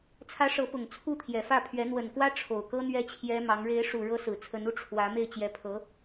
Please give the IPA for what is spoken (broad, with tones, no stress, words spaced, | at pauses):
t͡sʰä˧˥ ʂɤ˧˥pʊ˨˩ŋ t͡sʰu˥˩t̪ʰjɛ˨˩fä˥˩pʰɥɛ˧˥ n̪wə˨˩nkwä˥ ʈ͡ʂʰo˨˩ʊ̯kɤ˥ n̪ɥɛ˥t͡ɕʰjɛ˥mɑ˧˥ŋ ɻe˧˥ɪ̯ʂu˨˩ ɻɤ˥sɹ̩˨˩ t͡sʰə˧˥nu˧˥ ʈ͡ʂʰwä˧˥ me˥˩ɪ̯t͡ɕjɛ˧˥pʰɤ˧˥